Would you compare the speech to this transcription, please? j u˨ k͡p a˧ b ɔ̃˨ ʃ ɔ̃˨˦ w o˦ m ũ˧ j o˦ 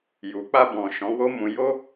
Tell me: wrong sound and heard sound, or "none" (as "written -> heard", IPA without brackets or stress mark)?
none